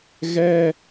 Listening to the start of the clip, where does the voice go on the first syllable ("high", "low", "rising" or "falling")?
high